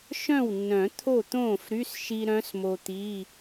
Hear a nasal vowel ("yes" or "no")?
yes